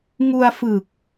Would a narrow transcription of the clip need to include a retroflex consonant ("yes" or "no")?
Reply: no